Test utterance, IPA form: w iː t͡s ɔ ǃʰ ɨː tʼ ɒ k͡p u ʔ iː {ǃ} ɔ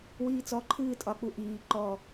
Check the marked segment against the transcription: correct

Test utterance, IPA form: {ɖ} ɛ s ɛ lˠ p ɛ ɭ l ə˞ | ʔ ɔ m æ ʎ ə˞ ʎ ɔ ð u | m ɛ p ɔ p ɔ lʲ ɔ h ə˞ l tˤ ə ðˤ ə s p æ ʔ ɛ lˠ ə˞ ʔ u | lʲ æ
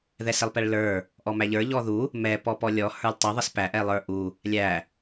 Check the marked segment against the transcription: incorrect: ð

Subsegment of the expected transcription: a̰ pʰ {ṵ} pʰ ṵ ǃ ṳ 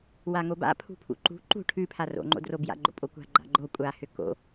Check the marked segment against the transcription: incorrect: ṳ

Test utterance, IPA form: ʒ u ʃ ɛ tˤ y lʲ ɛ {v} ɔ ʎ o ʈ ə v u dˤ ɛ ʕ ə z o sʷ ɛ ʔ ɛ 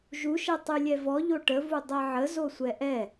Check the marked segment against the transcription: correct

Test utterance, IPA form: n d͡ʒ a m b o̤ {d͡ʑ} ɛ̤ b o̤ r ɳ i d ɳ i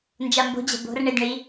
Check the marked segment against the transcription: correct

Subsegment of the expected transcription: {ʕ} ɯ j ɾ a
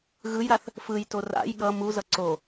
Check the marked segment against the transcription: incorrect: ɣ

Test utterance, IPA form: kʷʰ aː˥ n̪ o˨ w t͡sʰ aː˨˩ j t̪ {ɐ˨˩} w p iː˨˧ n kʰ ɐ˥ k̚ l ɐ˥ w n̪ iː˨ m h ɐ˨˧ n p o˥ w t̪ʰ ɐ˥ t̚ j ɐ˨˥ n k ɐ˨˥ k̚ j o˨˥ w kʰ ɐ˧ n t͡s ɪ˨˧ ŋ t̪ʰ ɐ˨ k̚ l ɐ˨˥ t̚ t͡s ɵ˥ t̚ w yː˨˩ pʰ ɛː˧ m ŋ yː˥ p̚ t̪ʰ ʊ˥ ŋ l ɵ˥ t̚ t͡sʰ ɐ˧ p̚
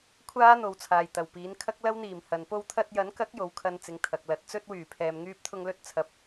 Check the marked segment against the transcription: correct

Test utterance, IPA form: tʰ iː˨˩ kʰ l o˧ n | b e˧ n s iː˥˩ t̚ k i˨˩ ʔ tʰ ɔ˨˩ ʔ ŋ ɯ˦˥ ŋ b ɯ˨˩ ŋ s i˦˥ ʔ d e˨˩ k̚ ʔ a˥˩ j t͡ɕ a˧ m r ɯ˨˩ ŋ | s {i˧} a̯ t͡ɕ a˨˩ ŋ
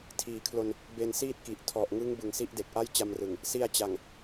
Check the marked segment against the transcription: correct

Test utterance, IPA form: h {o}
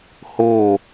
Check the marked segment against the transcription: correct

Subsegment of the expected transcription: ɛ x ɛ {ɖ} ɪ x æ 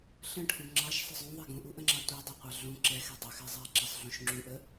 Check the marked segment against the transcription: incorrect: dˤ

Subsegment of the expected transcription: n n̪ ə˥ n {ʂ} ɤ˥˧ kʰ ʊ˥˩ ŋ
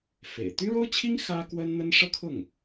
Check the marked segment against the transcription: correct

